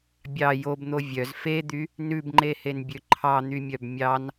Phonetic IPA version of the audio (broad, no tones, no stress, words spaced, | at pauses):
bʲɑ jobn̪o vʲœz fed̪y | nʉbŋ͡ǃehenbʲø ǃʰɑn̪ymʲœb mʲɑn